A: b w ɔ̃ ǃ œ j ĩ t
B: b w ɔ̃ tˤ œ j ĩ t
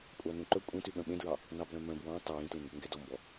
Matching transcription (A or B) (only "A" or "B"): B